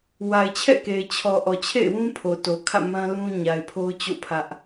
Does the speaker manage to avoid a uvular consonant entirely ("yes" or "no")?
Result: yes